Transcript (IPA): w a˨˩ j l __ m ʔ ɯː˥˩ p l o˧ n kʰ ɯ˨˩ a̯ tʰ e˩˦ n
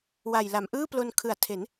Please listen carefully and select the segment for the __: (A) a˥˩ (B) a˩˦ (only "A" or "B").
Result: B